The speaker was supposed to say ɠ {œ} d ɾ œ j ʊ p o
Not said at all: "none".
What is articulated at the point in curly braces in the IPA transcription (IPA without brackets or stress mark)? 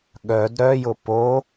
œ